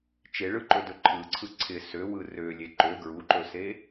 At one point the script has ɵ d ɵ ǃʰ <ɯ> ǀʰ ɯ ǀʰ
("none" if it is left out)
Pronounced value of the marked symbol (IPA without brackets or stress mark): ɯ